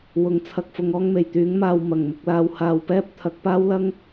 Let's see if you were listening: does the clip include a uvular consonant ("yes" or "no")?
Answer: no